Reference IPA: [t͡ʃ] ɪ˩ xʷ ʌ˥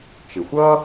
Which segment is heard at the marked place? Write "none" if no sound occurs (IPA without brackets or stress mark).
t͡ʃ